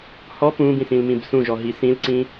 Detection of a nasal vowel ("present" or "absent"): present